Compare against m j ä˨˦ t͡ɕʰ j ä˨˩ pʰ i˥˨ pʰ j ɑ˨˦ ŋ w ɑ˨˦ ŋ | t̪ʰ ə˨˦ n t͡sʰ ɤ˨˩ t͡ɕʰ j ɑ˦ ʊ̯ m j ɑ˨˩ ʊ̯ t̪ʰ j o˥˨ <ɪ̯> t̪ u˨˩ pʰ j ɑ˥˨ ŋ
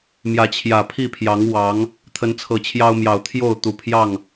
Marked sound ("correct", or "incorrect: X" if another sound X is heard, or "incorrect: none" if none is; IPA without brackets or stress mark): incorrect: ʊ̯